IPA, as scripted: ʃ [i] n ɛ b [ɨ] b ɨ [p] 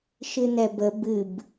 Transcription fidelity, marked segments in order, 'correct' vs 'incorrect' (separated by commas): incorrect, incorrect, incorrect